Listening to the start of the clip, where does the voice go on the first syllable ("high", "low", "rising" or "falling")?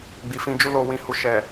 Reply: low